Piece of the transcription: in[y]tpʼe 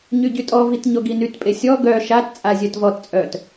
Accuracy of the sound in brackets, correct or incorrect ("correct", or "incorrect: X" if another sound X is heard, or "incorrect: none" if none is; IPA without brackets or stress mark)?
correct